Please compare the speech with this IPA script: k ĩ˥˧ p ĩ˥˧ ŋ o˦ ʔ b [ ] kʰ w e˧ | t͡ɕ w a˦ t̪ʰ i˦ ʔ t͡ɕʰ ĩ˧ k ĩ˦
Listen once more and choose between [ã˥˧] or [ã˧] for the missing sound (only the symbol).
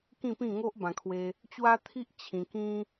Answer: ã˧